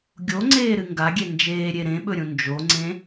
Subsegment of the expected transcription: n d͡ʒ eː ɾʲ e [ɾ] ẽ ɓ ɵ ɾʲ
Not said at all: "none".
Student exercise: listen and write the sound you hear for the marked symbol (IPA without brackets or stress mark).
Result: ɾ